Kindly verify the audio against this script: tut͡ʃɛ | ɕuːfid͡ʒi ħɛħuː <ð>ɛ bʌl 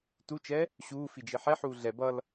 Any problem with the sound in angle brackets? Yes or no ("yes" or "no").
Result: yes